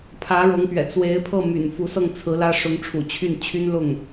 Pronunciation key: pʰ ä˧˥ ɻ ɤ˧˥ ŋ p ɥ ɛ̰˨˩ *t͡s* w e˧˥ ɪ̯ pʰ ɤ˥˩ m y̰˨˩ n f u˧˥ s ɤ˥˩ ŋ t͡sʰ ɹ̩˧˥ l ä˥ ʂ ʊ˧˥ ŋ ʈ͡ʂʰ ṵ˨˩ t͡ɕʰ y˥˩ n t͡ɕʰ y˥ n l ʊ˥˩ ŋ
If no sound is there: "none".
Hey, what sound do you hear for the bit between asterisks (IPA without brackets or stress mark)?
t͡s